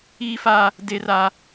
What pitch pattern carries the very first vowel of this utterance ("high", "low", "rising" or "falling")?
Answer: high